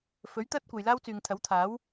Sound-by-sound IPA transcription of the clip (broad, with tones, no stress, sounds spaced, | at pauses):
f ɵ˨˥ ɥ t̪ ɐ˥ t̚ kʷ ɐ˨ j l aː˥ w t͡s yː˨ ŋ t̪ʰ ɐ˨˥ w t̪ʰ aː˨˥ w